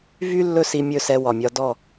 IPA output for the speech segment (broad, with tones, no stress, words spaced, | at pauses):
vy˦ lːɵ˦si˧mʲɵ˦˨sɛ˧ wɒ˨mʲɒ˧ dɔ˦˨